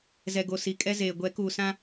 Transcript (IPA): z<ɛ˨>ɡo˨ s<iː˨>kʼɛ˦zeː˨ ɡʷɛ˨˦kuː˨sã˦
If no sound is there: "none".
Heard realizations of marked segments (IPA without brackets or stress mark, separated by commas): ɛ˨, i˨